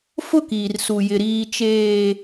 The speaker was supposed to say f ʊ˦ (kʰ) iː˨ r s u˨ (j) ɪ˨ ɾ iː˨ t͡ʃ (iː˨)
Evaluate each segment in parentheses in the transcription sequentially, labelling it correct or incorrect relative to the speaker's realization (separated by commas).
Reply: incorrect, correct, incorrect